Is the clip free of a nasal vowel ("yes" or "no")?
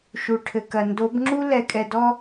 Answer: yes